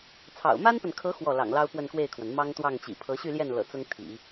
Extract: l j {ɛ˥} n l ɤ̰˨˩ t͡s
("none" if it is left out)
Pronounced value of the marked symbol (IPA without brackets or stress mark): ɛ˥˩